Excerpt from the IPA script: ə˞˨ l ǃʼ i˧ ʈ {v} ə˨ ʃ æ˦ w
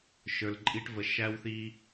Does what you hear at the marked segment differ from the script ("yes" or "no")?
no